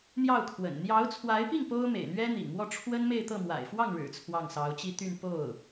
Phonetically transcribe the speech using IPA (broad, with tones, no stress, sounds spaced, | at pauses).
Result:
n̪ j ɑ˥˩ ʊ̯ kʰ w ə̰˨˩ n n̪ j ɑ˧˥ ʊ̯ t͡sʰ w a˧˥ ɪ̯ p i˥˩ ŋ p o˥ ʊ̯ m ḛ˨˩ ɪ̯ n̪ ɥ ɛ˥ n̪ ḭ˨˩ ŋ m w ɔ˥˩ ʈ͡ʂʰ w ə˥ n m e˥˧ ɪ̯ t̪ ɤ˥˩ m w a̰˨˩ ɪ̯ f w ɑ˥˩ ŋ ɻ ɻ̩˨˩ t͡sʰ w ɑ˥˩ ŋ s ɑ˧˥ ʊ̯ t͡ɕ i˥ t̪ y˥˧ n p o˥˩ ʊ̯